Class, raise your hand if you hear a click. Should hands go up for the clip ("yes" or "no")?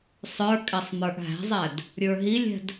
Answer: no